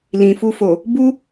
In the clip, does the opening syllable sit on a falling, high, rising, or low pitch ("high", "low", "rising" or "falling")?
low